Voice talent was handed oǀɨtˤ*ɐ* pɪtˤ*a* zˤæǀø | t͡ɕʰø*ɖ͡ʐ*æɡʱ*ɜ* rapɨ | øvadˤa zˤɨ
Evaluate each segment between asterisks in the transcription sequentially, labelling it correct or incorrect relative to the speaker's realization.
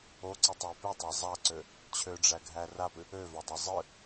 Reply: incorrect: æ, incorrect: æ, correct, incorrect: æ

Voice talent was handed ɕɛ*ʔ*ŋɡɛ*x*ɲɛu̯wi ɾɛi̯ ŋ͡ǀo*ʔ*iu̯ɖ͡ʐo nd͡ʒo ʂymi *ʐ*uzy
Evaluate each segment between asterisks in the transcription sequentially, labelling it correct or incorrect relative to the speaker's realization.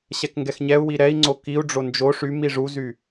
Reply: incorrect: k, correct, incorrect: k, correct

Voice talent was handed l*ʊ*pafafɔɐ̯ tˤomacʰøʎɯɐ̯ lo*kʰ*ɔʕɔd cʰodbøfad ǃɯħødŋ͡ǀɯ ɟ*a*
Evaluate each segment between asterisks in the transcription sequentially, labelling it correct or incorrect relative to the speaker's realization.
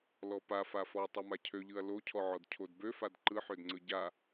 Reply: incorrect: ɔ, incorrect: cʰ, correct

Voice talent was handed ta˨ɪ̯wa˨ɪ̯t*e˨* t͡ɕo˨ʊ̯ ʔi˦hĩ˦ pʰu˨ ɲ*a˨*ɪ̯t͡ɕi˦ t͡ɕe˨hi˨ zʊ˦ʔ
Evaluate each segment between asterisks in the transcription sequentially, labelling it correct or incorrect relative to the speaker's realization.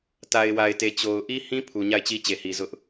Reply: correct, incorrect: a˦˨

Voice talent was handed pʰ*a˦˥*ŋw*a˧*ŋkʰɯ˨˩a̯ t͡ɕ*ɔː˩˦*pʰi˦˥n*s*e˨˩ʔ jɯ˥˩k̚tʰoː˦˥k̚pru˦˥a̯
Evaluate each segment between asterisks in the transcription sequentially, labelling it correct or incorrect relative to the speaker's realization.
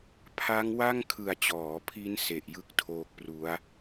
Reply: correct, incorrect: a˥˩, correct, correct

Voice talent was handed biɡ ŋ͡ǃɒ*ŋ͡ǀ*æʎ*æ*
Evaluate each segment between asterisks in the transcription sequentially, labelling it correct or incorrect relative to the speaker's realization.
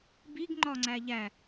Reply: correct, correct

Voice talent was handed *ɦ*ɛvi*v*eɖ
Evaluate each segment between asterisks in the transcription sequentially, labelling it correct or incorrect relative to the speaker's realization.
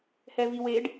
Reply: incorrect: h, incorrect: w

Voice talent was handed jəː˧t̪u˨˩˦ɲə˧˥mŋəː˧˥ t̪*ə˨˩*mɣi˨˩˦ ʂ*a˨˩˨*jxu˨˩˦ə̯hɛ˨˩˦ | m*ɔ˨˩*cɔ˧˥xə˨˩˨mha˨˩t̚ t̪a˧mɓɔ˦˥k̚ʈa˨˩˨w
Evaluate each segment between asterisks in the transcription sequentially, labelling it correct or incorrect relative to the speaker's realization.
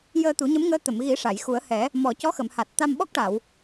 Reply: incorrect: ə˨˩˨, correct, correct

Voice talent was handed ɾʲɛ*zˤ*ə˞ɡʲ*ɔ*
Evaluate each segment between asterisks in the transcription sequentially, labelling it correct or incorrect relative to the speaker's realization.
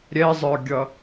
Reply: correct, incorrect: ʌ

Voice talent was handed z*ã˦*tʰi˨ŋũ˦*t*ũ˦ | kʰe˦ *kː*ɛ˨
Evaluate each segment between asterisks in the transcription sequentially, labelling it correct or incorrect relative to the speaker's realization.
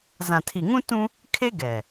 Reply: incorrect: ã˨, correct, incorrect: ɡ

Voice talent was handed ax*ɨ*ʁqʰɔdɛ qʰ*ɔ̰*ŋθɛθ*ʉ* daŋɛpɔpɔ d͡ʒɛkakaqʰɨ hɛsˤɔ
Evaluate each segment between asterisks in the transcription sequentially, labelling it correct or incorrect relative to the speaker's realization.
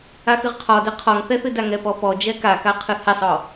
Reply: correct, incorrect: ɔ, incorrect: ɨ

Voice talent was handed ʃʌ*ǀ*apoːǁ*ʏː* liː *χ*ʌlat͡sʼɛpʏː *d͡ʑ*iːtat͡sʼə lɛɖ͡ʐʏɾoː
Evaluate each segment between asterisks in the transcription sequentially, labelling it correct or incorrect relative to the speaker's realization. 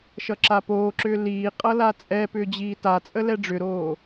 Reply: incorrect: ǁ, correct, incorrect: qʼ, correct

